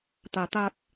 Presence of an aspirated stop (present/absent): absent